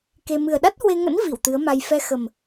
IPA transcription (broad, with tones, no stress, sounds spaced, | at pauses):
k e˧ m ɨ˨˩ ə̯ ɗ a˦˥ t̚ h w e˧ ŋ ə̰˧˥ n v i˧˩ w t̪ ɨ˨˦ ə̯ m a˧ j f ɛ˧ x ə˨˩ m